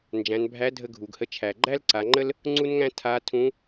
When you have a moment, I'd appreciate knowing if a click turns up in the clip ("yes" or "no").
yes